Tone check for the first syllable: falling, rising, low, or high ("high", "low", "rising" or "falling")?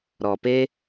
low